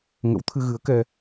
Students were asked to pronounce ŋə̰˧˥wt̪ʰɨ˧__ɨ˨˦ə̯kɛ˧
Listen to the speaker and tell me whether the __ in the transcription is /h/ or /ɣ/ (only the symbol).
ɣ